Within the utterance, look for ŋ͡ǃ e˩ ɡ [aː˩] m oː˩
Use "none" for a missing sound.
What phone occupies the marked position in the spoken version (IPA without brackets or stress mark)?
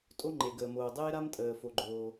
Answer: əː˩